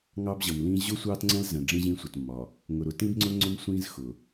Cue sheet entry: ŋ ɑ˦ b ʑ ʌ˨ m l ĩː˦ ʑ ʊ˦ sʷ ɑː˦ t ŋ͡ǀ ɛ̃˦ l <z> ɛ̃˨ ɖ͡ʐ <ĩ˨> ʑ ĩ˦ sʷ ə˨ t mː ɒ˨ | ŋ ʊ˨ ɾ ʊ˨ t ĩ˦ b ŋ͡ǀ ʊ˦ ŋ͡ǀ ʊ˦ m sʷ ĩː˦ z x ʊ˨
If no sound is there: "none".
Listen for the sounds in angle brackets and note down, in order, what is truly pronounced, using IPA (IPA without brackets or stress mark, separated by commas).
z, ĩ˦